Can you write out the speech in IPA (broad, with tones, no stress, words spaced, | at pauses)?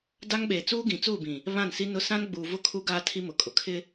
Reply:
da˦ŋɓeː˨ t͡suː˦ɡĩ˨t͡suː˦˨bĩ˨ | βã˦˨nsi˦nʊ˦ sã˦n ɡ͡buː˨vʊ˦ kʰu˦ ɡaː˦tʰi˦mʊ˨kʼʊ˨ kʰɪ˦